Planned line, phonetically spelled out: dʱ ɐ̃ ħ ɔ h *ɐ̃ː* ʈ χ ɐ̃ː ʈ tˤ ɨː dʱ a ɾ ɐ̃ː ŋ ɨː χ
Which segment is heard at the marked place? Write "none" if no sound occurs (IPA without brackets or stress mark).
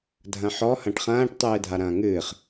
ɐ̃